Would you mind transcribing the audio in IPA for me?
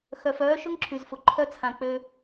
x œ˨ f œː˧ ʃ ʊ˦ ŋ ǁʰ y˨ z f ʊ˨ ǃʰ œ˧ t͡sʰ ã˨ k͡p ø˧

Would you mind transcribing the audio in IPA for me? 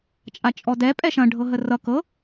t͡ʃʼ a t͡ʃʼ ɔ d ɛ pʼ ɛ ʃ ɐ̃ ɖʱ ɤ ɦ ə r ʌ k ɤ

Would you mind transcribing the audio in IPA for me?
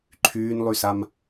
ǃʰ yː n lˠ y s a m

